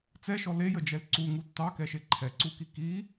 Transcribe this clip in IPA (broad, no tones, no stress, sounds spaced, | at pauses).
t͡s ɛ ʃ ɔ l e j ə d͡ʒ ɛ l ǀ u ŋ u tː ɑ k ɛ ʃ e ǃʰ ɛ ǀ u k i k i